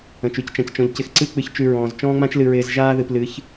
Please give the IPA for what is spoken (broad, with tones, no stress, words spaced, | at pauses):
ə̃˨t͡ʃʉ˦ct͡ʃã˨ct͡ʃɔ̃˨ʎ cɪ˨xǀɨ˦k͡pɨ˨çt͡ʃʉ˨ ɹɔ̃ː˨z t͡ʃɔ̃ː˦ŋ͡mã˦t͡ʃlɨ˨ ɹɪː˨zʒaː˦ðɨ˨p lɨ˨˦ç